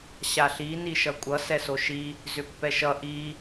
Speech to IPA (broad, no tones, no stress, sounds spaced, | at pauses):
ɕ a ɬ i n i ʃ ʌ kʷʼ ʌ s ɛ s o ʃ i | z ʏ pː ɛ ʃ ʌ ʔ i